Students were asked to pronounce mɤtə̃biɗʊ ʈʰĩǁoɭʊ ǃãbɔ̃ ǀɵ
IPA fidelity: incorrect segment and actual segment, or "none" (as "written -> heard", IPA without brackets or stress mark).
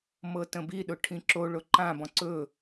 none